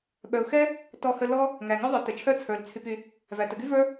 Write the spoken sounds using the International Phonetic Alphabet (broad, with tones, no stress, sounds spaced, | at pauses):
ɓ œ˧ ʊ̯ x ɛ˥ | t ɔ˥ h ə˥ l ɔ˥ | ŋ æ˧ ŋ œ˥ ðˤ ə˞˧ t ə˧ t͡ʃʰ œ˥ t͡sʰ ə˞˧ l t͡sʰ y˧ p y˧ | v æ˧ t ə˧ ɡ y˥ v ə˞˥